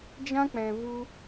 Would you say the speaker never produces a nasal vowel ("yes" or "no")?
no